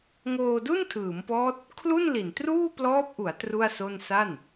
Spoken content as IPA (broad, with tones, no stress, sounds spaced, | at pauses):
ŋ oː˧ d u˥˩ n tʰ ɯː˩˦ m p ɔː˦˥ t̚ | kʰ l u˥˩ n l i˨˩ n t r uː˥˩ p l ɔː˦˥ p̚ ʔ u˩˦ a̯ t r u˥˩ a̯ s o˥˩ n s a˥˩ n